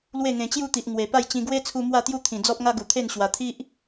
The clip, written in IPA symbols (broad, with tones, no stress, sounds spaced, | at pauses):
l w e˥˧ ŋ ẽ˧ t͡ɕ j u˥˧ t̪ i˨ ʔ ŋ w e˨˩ p a˥˧ j t͡ɕ ĩ˧ ɡ w e˦ t͡sʰ u˧ m w a˥˧ t̪ j u˥˧ t̪ʰ ĩ˨˩ d͡z ɔ˦ p̚ ŋ a˦ ɡ u˨˩ t̪ʰ e˥˧ n ɕ w a˨˩ t̪ʰ i˦ ʔ